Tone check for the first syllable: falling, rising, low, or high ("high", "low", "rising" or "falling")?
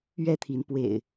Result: falling